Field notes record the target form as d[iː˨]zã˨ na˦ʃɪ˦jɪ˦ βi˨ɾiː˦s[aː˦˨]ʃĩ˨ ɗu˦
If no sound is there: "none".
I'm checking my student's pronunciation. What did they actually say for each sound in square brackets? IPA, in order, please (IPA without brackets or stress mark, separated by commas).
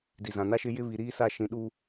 i˨, a˦˨